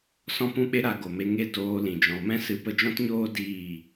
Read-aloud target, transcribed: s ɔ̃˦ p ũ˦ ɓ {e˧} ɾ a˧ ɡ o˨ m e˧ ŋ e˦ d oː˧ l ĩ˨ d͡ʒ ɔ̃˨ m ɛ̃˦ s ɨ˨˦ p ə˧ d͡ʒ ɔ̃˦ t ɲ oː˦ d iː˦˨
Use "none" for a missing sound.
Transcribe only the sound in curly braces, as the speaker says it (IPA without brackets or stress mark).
e˦